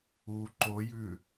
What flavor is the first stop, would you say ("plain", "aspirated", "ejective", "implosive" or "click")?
click